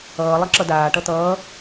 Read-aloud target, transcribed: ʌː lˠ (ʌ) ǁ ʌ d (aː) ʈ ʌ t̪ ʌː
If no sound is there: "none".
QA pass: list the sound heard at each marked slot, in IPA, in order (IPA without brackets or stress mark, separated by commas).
ʌ, aː